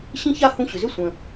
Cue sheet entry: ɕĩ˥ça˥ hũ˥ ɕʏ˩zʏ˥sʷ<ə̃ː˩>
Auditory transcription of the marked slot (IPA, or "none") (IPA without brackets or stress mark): ə̃˩